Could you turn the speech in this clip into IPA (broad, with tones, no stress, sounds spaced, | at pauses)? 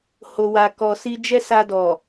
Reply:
h o˨ w a˨ k ɔ˨ s i˧ d͡ʒ ɛ˦ s a˧ d ɔ˨